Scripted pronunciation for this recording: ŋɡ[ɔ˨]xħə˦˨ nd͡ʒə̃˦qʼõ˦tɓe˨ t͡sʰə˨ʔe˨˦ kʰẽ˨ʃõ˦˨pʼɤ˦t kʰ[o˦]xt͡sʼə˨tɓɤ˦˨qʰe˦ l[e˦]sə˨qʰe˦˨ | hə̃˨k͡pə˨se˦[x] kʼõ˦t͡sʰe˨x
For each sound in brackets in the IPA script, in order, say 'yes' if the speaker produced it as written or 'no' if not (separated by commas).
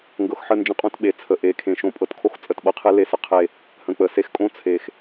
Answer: no, yes, yes, yes